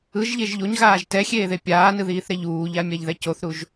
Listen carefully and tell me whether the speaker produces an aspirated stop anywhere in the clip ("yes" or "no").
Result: no